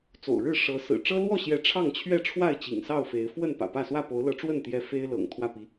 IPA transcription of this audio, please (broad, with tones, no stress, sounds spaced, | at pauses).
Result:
t͡s o̰˨˩ ʊ̯ ɻ ɻ̩˥˨ ʂ ɤ˨˦ s ɹ̩˨˩ ʈ͡ʂ ɤ˦ l w ɔ˥˨ ɕ j ɛ˨˦ ʈ͡ʂʰ ɑ˥˨ ŋ t͡ɕʰ ɥ ɛ˥˨ ʈ͡ʂʰ w a˥˨ ɪ̯ t͡ɕ ḭ˨˩ ŋ s ɑ˥˨ ʊ̯ f e˨˦ ɪ̯ f w ə˥˨ n p ä̰˨˩ p ä˥˨ s w ä˥˨ p o˨˦ ʊ̯ l ɤ˨˦ ʈ͡ʂ w ə˥˨ n t̪ j ɛ˦ f e˦ ɪ̯ l ɤ̰˨˩ ŋ t̪ʰ w ä˥˨ p i˨˦